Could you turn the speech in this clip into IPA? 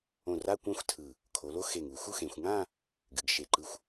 õ˧˩ r a˥˧ kʷ ã˥˧ xʷ tʰ ɯ˧˩ | kʰ o˩˧ l o˥˧ x e˧˩ ŋ u˩˧ x u˥˧ x ẽ˩˧ xʷ ŋ ã˥˧ | ɡ ɨ˩˧ ɡ ʃ e˧˩ ǃ ɯ˥˧ xʷ

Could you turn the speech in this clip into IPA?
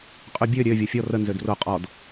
qʼ y bʲ ø ɾʲ ø vʲ o fʲ ɔ r ə n z ø d r o qʼ ɔ d

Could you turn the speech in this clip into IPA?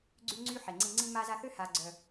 ɡ͡ǀ y˦ ŋ͡ǀ y˦ ħ e˨ ŋ͡ǀ ĩ˧ ŋ͡ǀ ĩ˧ m a˧ z a˧ θ ø˦ h a˧ ɡ͡ǀ œ˨

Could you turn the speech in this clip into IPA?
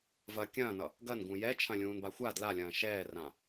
v ɐ kʲ ɐ̃ː n ʌ | ɡ ɐ n ɡ ũ j ɛ t͡ʃʰ ɐ̃ lʲ ũː n b a xʷ a d l a lʲ ɐ̃ː ʃ ɛː r ã

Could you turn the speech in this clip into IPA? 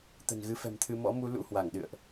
t̪ ə̤˨˩ n ɣ ɨ˧ f ɛ̤˨˩ m t̪ʰ ɨ˧ m ɔ̰˧˥ m u˨˦ l ṵ˧˥ h w a˧˩ ŋ ɗ ɨ̰˧˨ ə̯ ʔ

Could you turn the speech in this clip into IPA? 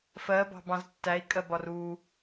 f ɜ b ɑ̤ b ɑ̃ z tː æ i̯ kʼ ɜ b ɒ r u

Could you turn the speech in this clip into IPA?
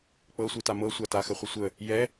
k͡p ɤ sʷ i t a m ɤ sʷ a t a x ə χʷ ə sʷ ə | j ɛ

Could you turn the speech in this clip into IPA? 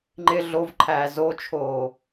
ŋ͡ǃ ɪ ɮ o v ǃʰ æː z o t͡ʃʰ oː

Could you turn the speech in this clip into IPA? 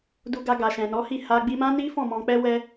d u˧ ɡ a˧ ɡ a˨ ʃ ɛ̃˨ n ɔ˨˦ h i˦˨ h a˧ ɡ͡b i˧ m ã˦ n i˦ f ɔ̃˦˨ m ɔ̃˧ k͡p ɛ˦ w ɛ˦

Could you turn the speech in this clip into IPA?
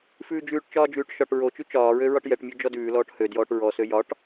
f ʉː d͡ʒ ʉː ʈ t͡ʃ ɒː d͡ʒ ʉː ʈ ʃ ɒ ʈ ɹ o t͡ʃ ʉ t͡ʃ ɒː ɹ ø ɹ ɒ ʈ j ɛ ʈ mʲ o d͡ʒ ɔ d ʉː l ɔː ʈ h ø d j ɔː ʈ ɹ ɔ s ø j ɒ ʈ

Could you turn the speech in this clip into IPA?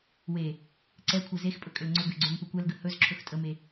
w e | ǀ ɛ kʷʰ ɛ z e x pʼ ɵ kʼ ʏ l ŋ͡ǀ ʏ ɡ ø ɡ͡ǀ ø m p ø kʷ ɛ l ɡ ə h ɵ z ǁʰ ɵ x tʼ ə m e

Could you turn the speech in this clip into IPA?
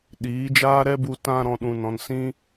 ɗ iː˨˦ d͡ʒ aː˦ ɾ ɛ˦ b u˧ t ã˧ ɾ ɔ̃˨ ɗ ũ˨ n ɔ̃˨ n s ĩ˦

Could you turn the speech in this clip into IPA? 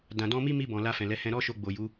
d ã˨ d ɔ̃˧ m i˦ m i˧ b ɔ̃˨ l a˧ f ɛ̃˨ l ɛ˨˦ h ɛ̃˧ ɾ ɔ˦ ʃ o˧ ɡ͡b o˨ j u˨˦

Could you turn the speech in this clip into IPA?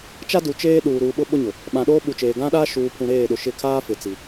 t͡ʃ a˦ d u˨ t͡ʃ eː˦ ɗ uː˨ ɾ uː˨ ɓ ʊ˦ ɓ ʊ˦ ɲ ʊ˨ | ɓ ã˨ ɗ oː˦ ɓ u˨ t͡ʃ eː˨ ɡ ã˦ ɗ aː˦ ʃ uː˨ pʰ ũ˨ ɾ eː˦˨ ɗ ʊ˨ ʃ ɪ˦˨ kʰ aː˦ f ɪ˨ t͡s i˨

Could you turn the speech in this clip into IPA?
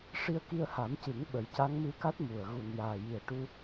ʂ i˧ ə̯ k i˧ ə̯ h a˨˩˦ m c ɨ˨˩˦ ŋ ɓ ə˨˩ j c a˧˥ ŋ m ɨ˧˥ k a˦˥ t̚ m u˨˩ ə̯ ɣ u˨˩ n j aː˨˩ j i˨˩ ə̯ ʈ u˧

